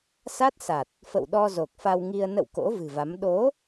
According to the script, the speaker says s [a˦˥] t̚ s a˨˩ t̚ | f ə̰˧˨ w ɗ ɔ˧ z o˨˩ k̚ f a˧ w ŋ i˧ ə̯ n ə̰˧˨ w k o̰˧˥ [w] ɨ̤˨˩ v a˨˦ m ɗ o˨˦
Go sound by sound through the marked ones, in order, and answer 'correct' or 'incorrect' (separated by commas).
correct, incorrect